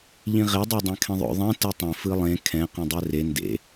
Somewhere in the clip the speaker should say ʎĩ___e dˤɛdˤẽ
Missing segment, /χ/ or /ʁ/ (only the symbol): ʁ